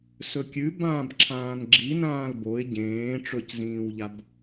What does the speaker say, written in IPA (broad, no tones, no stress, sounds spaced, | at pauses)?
s ɵ kʲ ʉ b ãː b ǁʰ ãː n ɡ͡ǁ i n ãː l b o ɪ̯ ɟ ẽː ʈ͡ʂ ɵ c z ĩː w ʎ a b